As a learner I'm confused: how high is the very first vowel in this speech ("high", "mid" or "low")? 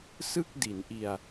high